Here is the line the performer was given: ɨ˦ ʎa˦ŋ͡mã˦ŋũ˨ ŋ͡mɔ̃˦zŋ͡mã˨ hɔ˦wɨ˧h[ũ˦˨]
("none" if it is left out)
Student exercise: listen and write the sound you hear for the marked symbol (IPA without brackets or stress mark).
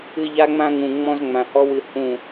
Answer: ũ˦˨